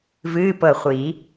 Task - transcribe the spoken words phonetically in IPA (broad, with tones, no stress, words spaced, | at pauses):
vɨː˧˥˧pɤ˧˩χʷi˨˩˦